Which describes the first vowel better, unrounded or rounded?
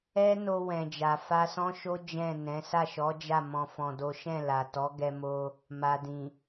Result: unrounded